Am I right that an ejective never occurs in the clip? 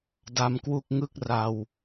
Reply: yes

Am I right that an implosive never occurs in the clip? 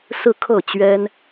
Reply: yes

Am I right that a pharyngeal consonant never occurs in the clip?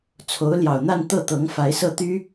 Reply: yes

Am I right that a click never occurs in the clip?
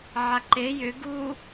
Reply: no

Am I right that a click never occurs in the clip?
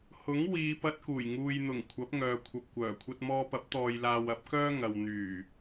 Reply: yes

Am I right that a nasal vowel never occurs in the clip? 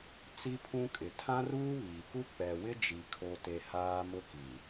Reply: no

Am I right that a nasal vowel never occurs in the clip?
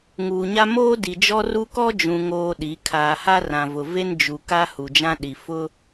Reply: no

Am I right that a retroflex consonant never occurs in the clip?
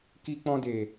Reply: yes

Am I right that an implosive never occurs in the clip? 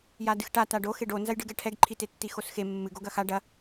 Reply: yes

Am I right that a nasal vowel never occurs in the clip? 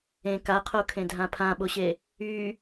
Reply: no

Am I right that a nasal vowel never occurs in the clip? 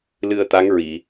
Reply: yes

